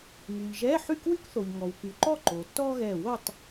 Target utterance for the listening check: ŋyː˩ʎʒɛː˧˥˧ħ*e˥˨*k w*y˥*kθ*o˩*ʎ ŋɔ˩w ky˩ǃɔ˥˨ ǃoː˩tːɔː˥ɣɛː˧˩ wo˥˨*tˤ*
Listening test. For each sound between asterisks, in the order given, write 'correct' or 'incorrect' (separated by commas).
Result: incorrect, correct, correct, correct